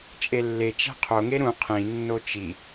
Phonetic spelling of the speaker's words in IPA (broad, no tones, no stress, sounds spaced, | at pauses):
t͡ʃʼ e lː e t͡ʃ æ̤ qʰ o ŋ e ɾ ũ qʰ ĩ nː o t͡ʃ i